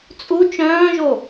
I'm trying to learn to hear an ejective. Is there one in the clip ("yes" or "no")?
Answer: yes